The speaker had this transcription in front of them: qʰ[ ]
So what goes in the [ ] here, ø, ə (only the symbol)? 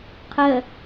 ə